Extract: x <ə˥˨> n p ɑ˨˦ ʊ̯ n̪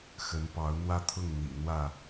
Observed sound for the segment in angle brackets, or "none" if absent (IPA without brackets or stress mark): ə˨˦